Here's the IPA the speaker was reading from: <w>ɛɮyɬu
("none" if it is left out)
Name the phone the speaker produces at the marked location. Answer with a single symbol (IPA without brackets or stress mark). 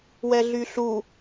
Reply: w